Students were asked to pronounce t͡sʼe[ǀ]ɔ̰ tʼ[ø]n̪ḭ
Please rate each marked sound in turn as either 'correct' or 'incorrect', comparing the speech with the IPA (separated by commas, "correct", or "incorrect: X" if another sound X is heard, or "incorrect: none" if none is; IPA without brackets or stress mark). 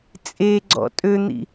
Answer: incorrect: ɡ͡ǀ, correct